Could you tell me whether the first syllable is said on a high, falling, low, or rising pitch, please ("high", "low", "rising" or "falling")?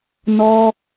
high